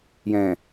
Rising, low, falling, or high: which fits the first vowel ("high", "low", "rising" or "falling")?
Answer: low